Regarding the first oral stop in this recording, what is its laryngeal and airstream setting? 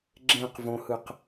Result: click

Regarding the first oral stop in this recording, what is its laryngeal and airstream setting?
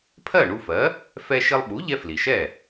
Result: aspirated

